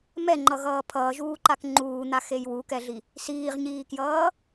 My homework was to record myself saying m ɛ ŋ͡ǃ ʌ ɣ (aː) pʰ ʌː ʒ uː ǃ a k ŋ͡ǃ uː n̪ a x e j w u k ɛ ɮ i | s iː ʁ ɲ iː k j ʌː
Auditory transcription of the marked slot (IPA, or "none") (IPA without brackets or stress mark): ʌː